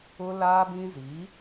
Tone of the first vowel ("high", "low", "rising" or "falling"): high